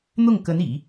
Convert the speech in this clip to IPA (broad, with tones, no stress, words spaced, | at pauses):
n̪ʊ˥˩ŋkə˧˥n ḭ˨˩˦